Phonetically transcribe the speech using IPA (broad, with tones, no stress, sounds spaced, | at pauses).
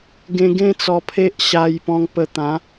ɡ ẽ˧ ɡ ẽ˦ t͡s ɔ˧ pʰ e˦ ʔ ɕ a˧ j p ɔ̃˧ ŋ p ə˧ t̪ ã˨˦